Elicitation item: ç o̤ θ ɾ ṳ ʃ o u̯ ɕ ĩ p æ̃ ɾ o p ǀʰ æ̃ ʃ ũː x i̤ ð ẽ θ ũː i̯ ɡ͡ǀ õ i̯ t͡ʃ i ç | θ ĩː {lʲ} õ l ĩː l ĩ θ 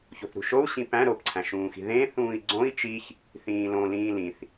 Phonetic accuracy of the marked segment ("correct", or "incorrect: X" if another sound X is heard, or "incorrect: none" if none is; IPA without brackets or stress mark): incorrect: l